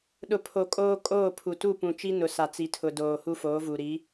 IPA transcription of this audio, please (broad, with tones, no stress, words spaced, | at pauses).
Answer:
ɗʊ˨ pʰo˨kʼoː˦ kʼoː˦˨pʰu˨ tu˦˨pũ˨ t͡ʃi˦nʊ˨sa˨ t͡si˨tʰʊ˨doː˨ hu˦foː˨˦vu˨ ɾi˨˦